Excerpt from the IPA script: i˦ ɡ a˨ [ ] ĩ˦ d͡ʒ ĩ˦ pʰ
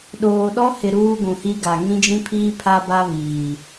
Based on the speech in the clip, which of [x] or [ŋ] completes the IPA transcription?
ŋ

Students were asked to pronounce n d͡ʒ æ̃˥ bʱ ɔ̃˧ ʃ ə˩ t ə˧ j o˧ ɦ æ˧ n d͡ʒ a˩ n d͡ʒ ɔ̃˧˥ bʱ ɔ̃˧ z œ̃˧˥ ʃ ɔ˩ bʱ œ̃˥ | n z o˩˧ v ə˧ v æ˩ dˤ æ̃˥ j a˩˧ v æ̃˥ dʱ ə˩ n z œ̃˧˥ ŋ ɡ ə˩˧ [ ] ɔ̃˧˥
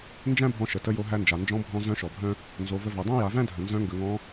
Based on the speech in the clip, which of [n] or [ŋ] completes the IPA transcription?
ŋ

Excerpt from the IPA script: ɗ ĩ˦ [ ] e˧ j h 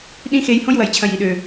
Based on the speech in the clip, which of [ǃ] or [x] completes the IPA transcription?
x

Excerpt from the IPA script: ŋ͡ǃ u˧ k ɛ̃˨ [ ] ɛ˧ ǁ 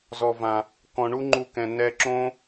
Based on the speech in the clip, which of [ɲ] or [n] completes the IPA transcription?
n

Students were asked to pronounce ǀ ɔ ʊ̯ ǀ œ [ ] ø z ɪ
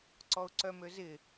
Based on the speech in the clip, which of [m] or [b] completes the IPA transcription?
m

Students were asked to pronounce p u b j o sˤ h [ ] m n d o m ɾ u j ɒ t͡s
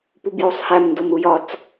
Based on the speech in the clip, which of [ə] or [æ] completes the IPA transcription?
æ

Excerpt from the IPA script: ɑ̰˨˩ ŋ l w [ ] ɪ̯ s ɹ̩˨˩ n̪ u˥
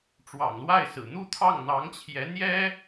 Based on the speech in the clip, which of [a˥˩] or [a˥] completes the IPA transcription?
a˥˩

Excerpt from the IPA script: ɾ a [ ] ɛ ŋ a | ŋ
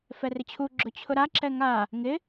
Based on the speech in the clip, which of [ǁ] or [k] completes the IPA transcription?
ǁ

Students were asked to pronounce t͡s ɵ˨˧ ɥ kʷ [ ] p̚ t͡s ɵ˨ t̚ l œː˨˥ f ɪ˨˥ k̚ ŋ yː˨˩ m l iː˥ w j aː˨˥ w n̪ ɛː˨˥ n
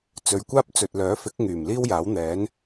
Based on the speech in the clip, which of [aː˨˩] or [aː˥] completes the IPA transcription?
aː˥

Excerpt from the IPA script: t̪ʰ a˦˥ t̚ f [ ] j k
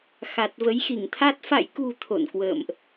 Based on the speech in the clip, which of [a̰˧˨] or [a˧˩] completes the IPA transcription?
a̰˧˨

